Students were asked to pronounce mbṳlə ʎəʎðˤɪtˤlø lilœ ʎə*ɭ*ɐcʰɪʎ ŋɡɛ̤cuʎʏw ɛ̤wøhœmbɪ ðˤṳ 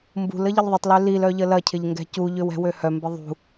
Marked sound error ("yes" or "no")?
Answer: yes